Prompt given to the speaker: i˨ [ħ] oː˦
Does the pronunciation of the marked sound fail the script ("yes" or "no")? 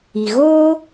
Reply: yes